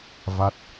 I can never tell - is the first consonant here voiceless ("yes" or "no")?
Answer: no